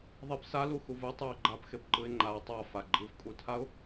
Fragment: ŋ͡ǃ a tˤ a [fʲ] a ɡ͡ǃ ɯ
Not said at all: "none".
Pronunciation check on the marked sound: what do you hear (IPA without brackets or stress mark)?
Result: f